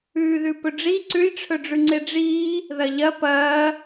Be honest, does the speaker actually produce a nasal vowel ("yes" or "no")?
no